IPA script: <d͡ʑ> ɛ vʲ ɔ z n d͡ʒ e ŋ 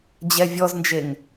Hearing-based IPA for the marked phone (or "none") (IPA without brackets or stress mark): d͡ʑ